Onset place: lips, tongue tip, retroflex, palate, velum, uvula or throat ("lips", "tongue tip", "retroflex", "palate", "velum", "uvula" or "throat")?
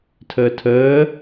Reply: tongue tip